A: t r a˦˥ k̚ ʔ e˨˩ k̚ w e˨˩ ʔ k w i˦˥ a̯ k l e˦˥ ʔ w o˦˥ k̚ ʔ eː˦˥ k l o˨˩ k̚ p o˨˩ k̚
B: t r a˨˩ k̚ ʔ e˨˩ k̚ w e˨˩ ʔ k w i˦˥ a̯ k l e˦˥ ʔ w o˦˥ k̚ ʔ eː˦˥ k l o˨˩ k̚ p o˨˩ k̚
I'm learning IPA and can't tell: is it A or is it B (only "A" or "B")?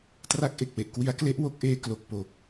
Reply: A